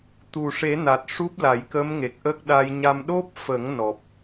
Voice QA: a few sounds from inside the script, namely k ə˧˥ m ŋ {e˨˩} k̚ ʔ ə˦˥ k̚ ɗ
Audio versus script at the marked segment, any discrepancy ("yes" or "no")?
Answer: no